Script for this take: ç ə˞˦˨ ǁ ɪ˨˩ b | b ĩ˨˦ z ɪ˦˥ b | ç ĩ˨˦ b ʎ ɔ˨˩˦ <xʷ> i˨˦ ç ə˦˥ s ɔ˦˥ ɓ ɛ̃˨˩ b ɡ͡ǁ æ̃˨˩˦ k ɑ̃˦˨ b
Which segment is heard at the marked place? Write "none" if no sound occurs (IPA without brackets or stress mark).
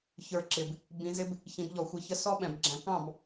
xʷ